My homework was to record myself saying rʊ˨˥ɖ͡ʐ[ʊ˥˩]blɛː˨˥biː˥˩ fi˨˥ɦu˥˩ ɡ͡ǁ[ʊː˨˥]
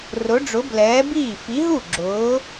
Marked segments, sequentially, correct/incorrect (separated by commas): incorrect, correct